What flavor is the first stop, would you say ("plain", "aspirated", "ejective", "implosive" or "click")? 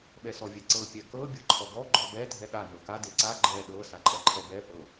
implosive